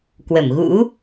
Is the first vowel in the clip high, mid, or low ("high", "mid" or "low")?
mid